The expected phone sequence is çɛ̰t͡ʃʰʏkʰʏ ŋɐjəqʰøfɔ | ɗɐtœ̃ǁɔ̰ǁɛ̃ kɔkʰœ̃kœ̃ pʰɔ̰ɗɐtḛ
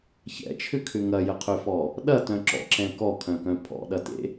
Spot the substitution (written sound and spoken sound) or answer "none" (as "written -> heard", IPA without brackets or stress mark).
none